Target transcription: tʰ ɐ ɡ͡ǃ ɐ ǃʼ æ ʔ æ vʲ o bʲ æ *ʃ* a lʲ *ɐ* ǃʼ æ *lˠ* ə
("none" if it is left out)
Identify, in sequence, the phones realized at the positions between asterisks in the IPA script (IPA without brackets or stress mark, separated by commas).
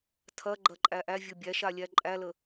ʃ, æ, l